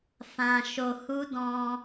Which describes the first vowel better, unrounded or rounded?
unrounded